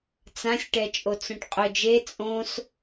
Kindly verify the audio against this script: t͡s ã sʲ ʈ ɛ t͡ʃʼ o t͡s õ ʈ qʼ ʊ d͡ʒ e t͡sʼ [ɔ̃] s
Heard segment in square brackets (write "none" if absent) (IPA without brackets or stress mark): õ